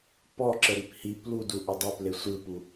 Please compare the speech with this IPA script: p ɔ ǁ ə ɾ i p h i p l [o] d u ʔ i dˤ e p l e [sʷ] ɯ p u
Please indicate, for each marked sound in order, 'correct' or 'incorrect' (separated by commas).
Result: incorrect, correct